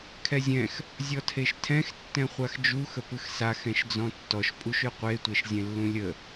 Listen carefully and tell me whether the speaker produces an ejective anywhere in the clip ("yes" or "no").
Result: yes